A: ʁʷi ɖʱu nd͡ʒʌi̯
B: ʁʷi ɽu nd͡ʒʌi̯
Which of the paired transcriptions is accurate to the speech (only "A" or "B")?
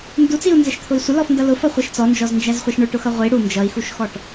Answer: B